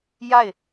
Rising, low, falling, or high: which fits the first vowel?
falling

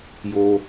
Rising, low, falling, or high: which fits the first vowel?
low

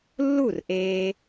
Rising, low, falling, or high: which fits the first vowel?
falling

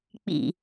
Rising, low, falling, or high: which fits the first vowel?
low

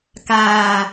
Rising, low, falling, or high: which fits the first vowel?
low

